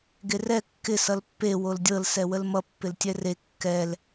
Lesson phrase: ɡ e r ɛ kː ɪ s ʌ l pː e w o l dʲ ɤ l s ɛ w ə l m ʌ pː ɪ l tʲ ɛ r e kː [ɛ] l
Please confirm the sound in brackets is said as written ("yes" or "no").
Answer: yes